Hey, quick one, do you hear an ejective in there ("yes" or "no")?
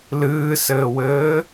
no